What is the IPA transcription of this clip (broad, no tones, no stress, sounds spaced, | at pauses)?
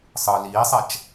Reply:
sˤ ɯ l iː sˤ ɛ t͡ʃ